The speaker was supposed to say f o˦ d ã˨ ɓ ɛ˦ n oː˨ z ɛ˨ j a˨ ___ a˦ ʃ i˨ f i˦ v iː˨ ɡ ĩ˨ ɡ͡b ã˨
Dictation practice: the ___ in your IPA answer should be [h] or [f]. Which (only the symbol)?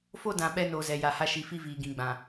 h